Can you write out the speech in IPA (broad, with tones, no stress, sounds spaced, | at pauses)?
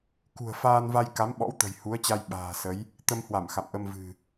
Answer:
k ṳ˨˩ ə̯ f aː˧ n v a˧ j k a˨˦ m ɓ ɔ̰˧˥ w t̪ ə̤˨˩ j h u˨˦ ə̯ t͡ɕ a˧ j ɓ a̤ː˨˩ s ə˨˦ j | t̪ ə˧ m h w a˧˩ m x a̰˧˨ m ʔ ə˧ m v ɨ̤˨˩